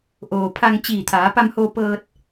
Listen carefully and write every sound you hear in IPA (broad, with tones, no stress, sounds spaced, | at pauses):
ʔ oː˩ pʰ a˧ ŋ t͡ɕ iː˧˩ t̪ʰ aː˩˧ p a˧ m h o˧ p ɤː˧ t̚